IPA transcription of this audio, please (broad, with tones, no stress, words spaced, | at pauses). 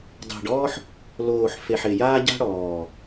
dˤe̤˨ɖɔː˦ħ | loː˨ħ fe˨ħɪ˨jaː˦ ɟa̤˦ɽɔː˨